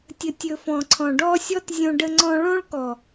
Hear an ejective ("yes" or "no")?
no